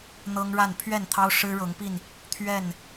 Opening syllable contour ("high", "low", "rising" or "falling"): high